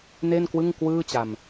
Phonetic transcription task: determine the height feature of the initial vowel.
mid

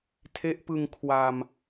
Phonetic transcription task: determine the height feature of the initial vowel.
mid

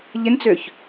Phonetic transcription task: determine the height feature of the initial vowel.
high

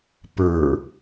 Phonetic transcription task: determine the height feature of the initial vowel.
mid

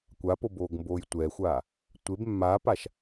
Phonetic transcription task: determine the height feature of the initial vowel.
low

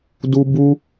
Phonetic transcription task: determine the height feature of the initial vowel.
high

